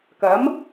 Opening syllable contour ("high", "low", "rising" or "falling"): rising